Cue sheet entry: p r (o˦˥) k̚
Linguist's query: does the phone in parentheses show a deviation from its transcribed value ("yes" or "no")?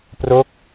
no